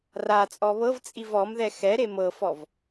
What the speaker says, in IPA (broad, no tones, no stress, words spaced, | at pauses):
rat͡sʼɔ βɤv t͡sʼivɔmðɛ xɛɾe mɤfɔv